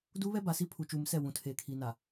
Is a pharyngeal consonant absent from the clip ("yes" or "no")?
yes